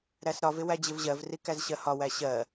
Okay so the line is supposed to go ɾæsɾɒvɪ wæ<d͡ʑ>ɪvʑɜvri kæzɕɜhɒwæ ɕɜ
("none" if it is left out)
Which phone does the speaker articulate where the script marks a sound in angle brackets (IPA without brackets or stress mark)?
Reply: d͡ʑ